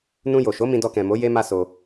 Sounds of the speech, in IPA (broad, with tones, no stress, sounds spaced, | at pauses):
n ũ˧ j o˨ ʃ o˨˦ m ĩ˧ d ɔ˧ k ɛ̃˨ m o˨˦ j e˦ m a˦ s o˧